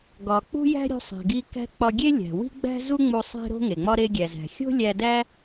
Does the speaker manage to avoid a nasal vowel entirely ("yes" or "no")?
yes